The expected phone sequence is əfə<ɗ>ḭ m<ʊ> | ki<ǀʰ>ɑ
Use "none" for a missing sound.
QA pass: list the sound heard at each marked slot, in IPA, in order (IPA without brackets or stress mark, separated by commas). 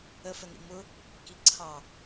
n, ʊ, ǀʰ